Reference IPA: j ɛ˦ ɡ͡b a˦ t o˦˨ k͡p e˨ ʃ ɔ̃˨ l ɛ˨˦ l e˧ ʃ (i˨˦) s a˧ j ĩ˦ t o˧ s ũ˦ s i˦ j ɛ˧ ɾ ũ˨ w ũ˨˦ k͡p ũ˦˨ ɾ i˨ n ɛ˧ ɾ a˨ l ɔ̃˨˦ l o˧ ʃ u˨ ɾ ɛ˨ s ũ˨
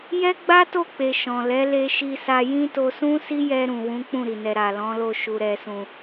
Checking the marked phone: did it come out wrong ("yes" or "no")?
yes